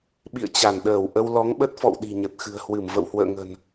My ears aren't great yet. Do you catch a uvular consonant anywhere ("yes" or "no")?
no